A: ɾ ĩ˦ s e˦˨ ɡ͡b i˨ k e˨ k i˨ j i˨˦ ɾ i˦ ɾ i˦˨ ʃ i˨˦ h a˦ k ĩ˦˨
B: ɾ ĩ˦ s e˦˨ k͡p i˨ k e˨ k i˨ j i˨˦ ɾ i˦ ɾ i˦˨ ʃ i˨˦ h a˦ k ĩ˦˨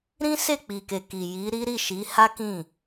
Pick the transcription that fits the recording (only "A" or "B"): B